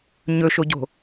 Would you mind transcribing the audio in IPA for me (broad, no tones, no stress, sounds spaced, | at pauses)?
ɲ ɵ ʃ o ɟ o̤